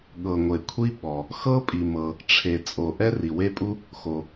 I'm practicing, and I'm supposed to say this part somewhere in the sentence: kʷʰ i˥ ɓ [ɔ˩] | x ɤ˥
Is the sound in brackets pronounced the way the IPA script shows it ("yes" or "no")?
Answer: yes